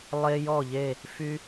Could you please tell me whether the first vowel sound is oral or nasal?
oral